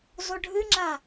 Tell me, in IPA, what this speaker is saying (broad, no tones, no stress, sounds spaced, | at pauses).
z o ɖʱ ɨ ŋ͡ǁ a